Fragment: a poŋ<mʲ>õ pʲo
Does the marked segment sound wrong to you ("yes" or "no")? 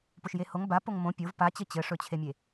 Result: yes